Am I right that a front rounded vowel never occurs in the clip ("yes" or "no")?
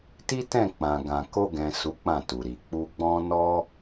yes